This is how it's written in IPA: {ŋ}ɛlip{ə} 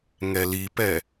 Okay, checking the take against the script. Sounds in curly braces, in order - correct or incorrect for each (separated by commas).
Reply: correct, incorrect